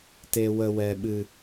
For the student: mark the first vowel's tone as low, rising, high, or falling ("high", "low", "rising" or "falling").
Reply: low